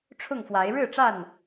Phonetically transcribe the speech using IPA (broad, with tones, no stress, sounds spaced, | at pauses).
ʈ͡ʂʰ ʊ˥˨ ŋ f w a˨˦ ɪ̯ ɻ ɻ̩˥˨ ʈ͡ʂ a˥˨ n